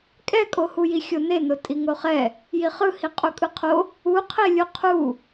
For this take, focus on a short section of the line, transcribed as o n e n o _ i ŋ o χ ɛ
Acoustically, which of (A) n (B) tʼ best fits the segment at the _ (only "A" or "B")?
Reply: B